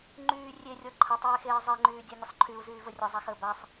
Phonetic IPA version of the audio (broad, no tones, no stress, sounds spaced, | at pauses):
ŋ͡ǃ yː rʲ e rʲ ɔ ǃʰ ə tˤ eː x eː zˤ e ŋ͡ǃ yː dʲ a nʲ ə sˤ ǃʰ y u̯ z yː v ə rʲ ə zˤ a x əː b a sˤ